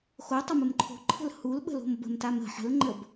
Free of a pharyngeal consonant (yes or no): no